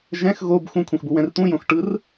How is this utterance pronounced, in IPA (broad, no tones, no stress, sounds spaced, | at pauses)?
ʒ ɛ̃ x ɣ o b x ũ kʷʰ ɛ̃ x b u w ɛ̃ r t̪ ũ j õ x ʈ ɯ r